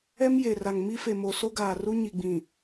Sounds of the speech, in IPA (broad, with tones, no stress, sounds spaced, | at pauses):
ɛ˦ m j e˨ r a˨ ŋ m i˦ f e˨ m o˨ s o˦ ɡ aː˨ r u˦ ɲ i˨ ɡ͡b ĩ˨